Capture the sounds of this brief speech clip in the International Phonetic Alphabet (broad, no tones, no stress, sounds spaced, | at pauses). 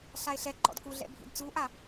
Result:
ɬ a e̯ ɬ ɛ ǃ ɔ̰ d k u ɮ ɛ̰ bʱ ḭ d t͡s u ʔ a